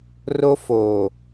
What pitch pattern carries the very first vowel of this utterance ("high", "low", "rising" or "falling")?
high